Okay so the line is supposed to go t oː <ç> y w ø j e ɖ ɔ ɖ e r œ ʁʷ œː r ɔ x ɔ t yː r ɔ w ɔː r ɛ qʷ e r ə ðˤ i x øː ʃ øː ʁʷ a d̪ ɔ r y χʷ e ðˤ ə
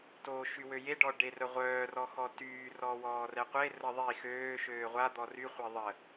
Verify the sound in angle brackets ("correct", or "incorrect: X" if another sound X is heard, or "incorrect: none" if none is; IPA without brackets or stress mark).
incorrect: ʃ